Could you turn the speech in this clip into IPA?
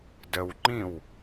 dəwŋ͡ǃĩw

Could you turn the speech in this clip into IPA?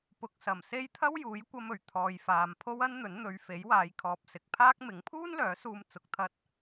pʊ˨k̚sɐ˨˩m se˥j t̪ʰɐ˥wjuː˨˥j kʷɐ˧mɵ˨˩ɥ t̪ʰɔː˧jfaː˧m pʰo˥wɐ˥nn̪ɵ˨˥n n̪ɵ˨˧ɥfe˨˥j waː˨˧jkʰɔː˨p̚sɪ˨˥k̚pʰaː˥k̚ mɪ˨˥ŋpʰuː˥nlœː˨˥suː˧m t͡sʊ˧k̚t̪ʰɐ˥t̚

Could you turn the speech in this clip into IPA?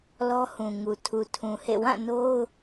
lɔ˦hũ˨ŋu˨ tʰu˨tʰũ˨hḛ˦˨ wã˦˨ no˦ʊ̯

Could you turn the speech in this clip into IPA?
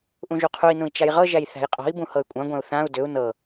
ʔũʒuqʰui̯nũi̯ t͡ʃajʁɤʒæj θæ̤jqʼɔ̤i̯bũ hɤy̯kʷʼãɡʷæ̃u̯ θãu̯ dʏu̯ nɤ

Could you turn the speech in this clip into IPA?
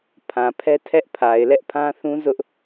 pʰã˨pʰɛ˦ tʰɛ˦ʔpʰa˨ɪ̯ lɛ˦ʔ pʰã˦θũ˦ zʊ˦ʔ

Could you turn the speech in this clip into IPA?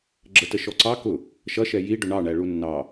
ɡ͡ǁətəʃɔǀɑ kʊ | ʃʌʃɛ jiɖʊ ɳɑɳæɭu nːɑ

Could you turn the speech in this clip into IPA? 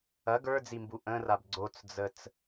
ɐ ɡə˞d͡zimbu ʔə̃rab ɡ͡ǀot͡sd͡zət͡s

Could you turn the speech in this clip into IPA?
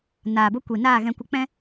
naː˨bo˧kʷi˨ naː˦˨ɣɛ̃˧kʷə˧ k͡pɛ̃˦

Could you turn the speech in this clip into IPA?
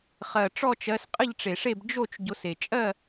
χɜ˨˩ʈ͡ʂɔ˥˨t͡ʃɜ˨˦s qʼə˥˨ʎʈ͡ʂe˨˩ʂe˥˨b d͡ʒo˥˨t͡ʃ ɟo˨˦se˨˩ t͡ʃʼɜ˥˨

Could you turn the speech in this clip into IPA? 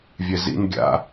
vʲɛzḭn ɡʲa̰

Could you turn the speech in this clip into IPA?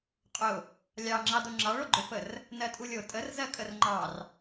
qʼʊ | lʲɑŋ͡ǁɑ doŋ͡ǁɑɭo ɡ͡ǃʊfər | nɜtʼulʲo tʼər zɜkʼərŋ͡ǃɑr

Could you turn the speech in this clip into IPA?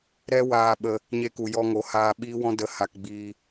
ɾɛ˦waː˧ɓə˧ | ɲe˧ku˨jɔ˧ŋo˨˦ haː˧ɓiː˦wɔ̃˦ də˨˦ ha˧k ɡ͡biː˧

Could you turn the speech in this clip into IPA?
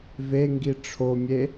veŋɡi ʈ͡ʂʰomʲe

